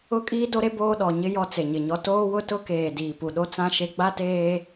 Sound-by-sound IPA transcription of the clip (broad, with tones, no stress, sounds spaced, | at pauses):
ʊ˦ kʼ iː˦ d o˦ ɾ e˦ b oː˦ ɗ ɔ˨ ɲ ɪ˦ j ɔ˦ t͡s e˨ ɲ ɪ˨ ɲ ɔ˦ t oː˦ w ʊ˦ t ʊ˦ k eː˨ d iː˨ p u˨ ɗ o˦ t͡s ã˦ ʃ e˦ ɡ͡b a˦ t eː˦